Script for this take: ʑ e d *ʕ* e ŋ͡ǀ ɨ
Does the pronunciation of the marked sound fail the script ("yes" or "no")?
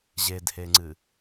yes